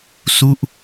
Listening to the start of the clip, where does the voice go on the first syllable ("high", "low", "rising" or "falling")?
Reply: falling